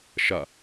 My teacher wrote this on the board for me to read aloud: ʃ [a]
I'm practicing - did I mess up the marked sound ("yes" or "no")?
no